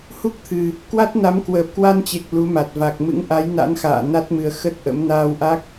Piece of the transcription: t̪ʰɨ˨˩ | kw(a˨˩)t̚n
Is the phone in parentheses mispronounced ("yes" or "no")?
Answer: yes